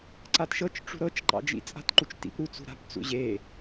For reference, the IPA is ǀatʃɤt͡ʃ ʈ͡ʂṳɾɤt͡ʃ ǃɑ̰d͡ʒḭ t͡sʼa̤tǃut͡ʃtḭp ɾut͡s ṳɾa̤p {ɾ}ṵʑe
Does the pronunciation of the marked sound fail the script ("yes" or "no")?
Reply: yes